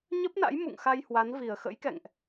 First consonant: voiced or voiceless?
voiced